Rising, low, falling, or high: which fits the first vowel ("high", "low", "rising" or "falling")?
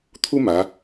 high